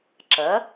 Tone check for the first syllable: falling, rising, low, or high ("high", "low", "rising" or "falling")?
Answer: rising